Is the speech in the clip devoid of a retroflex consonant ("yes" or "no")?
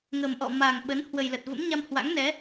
yes